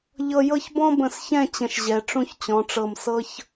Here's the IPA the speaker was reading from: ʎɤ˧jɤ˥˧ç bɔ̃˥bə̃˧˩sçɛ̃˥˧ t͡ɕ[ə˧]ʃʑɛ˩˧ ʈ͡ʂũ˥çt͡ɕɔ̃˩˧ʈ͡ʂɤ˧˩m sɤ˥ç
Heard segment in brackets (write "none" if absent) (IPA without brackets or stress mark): ə̃˧